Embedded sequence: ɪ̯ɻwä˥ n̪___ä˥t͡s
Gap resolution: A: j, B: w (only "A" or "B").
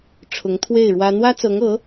B